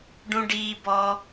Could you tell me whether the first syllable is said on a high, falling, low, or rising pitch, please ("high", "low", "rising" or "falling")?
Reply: high